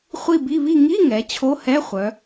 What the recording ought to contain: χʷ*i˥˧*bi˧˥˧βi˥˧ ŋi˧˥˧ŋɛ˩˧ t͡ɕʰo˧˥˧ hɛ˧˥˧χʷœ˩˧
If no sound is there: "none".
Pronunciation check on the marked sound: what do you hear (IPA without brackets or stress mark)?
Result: i˥˧